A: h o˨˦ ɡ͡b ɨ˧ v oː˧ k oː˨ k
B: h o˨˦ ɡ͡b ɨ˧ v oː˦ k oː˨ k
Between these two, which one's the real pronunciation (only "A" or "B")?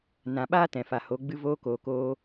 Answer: A